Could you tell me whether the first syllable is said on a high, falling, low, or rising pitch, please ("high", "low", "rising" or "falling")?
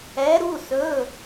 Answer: rising